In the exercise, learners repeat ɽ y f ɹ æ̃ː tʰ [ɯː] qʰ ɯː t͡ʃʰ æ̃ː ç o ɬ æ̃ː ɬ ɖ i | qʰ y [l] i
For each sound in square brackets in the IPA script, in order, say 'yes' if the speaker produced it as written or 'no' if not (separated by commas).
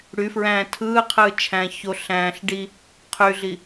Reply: yes, no